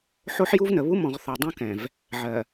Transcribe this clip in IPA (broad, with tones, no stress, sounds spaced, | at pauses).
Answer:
ħ o˦ ħ j u˦ v n ə˨ β u˦ m ɔ̃˨ ʁ θ ɔ˨ dˤ ũ˦ k ɛ̃˨ v | ʕ ɜ˨